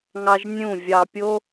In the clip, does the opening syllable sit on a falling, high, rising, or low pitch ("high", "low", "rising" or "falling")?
high